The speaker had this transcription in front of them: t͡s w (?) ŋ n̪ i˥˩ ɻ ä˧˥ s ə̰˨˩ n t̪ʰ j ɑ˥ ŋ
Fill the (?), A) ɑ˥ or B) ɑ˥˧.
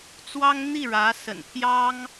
A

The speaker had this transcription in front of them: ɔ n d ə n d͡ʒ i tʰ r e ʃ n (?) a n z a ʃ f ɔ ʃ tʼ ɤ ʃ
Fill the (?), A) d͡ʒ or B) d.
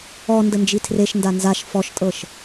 B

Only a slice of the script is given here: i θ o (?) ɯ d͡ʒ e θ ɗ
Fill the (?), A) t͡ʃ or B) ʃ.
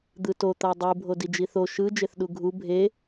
B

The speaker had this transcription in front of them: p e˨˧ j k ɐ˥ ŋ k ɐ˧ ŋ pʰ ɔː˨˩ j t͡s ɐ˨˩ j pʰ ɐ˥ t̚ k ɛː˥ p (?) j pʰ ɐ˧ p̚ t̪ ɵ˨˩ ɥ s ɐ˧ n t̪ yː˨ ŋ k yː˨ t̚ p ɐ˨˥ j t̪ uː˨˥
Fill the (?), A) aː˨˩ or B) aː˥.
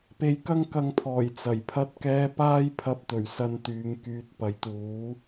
B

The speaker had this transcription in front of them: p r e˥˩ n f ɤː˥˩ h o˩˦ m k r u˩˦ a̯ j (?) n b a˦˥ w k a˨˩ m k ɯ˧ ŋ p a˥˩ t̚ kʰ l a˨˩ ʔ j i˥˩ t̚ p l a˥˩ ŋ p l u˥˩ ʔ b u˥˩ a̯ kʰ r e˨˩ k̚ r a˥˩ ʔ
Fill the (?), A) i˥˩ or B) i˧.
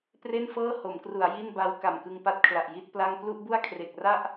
A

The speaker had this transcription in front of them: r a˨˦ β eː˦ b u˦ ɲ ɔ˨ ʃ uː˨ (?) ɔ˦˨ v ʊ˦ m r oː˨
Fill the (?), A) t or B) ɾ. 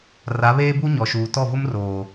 A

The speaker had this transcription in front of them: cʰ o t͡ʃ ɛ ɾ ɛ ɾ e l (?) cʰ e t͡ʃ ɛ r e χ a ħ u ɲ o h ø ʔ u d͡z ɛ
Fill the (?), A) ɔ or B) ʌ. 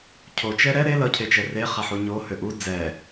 B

